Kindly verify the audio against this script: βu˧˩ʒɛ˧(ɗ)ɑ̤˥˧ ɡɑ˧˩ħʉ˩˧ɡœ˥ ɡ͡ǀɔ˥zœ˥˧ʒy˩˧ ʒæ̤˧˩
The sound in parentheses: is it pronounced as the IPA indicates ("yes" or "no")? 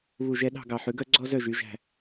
yes